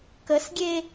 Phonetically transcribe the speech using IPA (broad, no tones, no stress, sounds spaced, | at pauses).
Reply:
k ə s ɡʲ e